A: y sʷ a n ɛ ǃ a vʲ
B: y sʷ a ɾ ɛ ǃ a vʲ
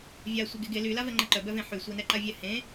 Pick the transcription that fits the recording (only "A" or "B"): A